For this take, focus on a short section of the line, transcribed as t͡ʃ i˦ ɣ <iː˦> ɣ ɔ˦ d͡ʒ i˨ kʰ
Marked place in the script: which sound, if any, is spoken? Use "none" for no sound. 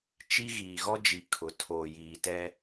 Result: iː˨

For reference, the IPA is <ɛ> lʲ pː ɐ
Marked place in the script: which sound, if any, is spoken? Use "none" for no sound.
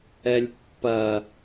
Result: ɛ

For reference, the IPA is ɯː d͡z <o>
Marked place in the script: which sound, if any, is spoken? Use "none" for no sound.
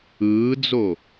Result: o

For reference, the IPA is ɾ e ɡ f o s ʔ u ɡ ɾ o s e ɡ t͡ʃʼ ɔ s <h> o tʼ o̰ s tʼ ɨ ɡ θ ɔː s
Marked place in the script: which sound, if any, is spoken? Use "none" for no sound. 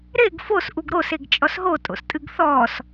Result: ɦ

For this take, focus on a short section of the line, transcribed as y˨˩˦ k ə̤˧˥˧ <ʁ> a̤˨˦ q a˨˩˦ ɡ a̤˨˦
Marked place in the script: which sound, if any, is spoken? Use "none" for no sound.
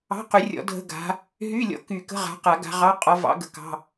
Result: ʁ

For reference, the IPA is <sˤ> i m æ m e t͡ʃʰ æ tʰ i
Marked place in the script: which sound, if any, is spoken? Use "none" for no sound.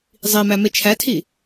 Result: zˤ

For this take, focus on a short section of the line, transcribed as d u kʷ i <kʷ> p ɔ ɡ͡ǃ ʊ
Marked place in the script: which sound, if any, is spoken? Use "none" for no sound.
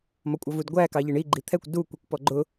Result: kʷ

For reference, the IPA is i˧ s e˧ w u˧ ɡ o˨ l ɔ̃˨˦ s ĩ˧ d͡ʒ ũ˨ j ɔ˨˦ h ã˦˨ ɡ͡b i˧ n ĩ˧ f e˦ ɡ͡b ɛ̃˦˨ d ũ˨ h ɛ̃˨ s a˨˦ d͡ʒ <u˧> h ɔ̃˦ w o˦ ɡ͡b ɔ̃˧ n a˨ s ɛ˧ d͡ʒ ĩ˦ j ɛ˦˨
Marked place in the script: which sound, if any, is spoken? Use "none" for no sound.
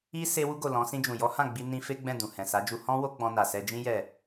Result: u˧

